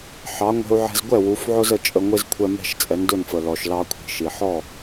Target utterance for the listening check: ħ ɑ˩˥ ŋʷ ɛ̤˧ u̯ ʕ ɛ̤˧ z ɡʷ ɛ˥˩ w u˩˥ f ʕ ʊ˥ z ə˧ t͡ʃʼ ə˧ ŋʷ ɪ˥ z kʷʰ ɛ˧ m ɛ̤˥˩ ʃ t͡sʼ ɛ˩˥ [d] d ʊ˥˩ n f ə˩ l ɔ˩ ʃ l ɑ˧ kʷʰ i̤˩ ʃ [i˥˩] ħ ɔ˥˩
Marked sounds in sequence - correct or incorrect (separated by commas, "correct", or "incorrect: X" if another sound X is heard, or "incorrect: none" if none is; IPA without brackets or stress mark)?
incorrect: n, incorrect: i˩